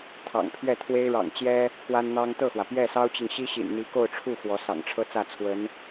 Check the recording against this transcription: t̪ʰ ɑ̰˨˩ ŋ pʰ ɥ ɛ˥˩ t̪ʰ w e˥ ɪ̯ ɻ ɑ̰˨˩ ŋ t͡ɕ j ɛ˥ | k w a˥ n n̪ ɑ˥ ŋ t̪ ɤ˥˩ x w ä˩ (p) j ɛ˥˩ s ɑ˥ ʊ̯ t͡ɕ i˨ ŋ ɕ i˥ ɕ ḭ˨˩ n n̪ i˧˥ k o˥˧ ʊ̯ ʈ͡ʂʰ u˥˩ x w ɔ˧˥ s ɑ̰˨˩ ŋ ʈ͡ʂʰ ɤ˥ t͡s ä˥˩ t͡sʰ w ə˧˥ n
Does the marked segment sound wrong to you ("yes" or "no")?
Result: no